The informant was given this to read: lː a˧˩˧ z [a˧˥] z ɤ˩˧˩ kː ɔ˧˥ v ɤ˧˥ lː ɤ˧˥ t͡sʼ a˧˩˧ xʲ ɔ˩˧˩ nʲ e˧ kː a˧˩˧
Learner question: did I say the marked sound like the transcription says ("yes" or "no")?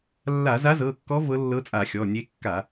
yes